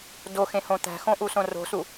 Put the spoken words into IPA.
doxẽhõ t̪æ̤xõʔusõ ro̤su

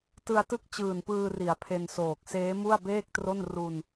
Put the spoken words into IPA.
tɯ˧a̯tɯ˥˩k̚ t͡ɕɯː˨˩npɯː˧ri˩˦a̯ pʰe˧nsoː˨˩k̚ seː˦˥mu˥˩a̯beː˥˩k̚tro˥˩n ru˧n

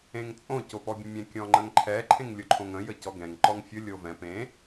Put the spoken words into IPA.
ẽŋt͡sʼõ copɔbʲə̃mʲɛ̃ kʲɔ̃ŋ͡ǃə̃ŋǃʰɛ ǃʰẽŋlʲʊǃʰõŋə̃ jəcɔɡɛ̃ŋ ǃɔŋfʲʊ lʲovɛ̃ pẽ

